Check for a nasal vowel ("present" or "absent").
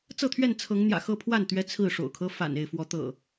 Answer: absent